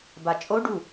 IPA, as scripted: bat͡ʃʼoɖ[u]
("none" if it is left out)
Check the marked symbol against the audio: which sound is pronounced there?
u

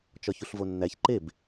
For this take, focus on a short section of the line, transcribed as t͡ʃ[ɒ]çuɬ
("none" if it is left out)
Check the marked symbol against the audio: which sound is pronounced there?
ɒ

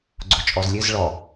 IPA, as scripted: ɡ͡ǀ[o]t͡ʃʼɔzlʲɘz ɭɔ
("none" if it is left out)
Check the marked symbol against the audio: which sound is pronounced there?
o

